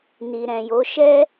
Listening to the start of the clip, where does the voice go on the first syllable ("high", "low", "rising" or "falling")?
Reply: low